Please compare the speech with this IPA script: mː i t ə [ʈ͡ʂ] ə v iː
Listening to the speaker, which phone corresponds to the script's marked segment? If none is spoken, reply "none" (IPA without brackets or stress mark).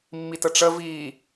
ʈ͡ʂ